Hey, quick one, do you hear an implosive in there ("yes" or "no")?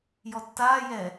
no